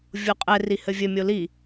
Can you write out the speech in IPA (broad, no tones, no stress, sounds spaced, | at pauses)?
vʲ o qʼ ɛ r i h ɘ vʲ ɘ mʲ o l i